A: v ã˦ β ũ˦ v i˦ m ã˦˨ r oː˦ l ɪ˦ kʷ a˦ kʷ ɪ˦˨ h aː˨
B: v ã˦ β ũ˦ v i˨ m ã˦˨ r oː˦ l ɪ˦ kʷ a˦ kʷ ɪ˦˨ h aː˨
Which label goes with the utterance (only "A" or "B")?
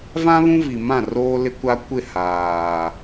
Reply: B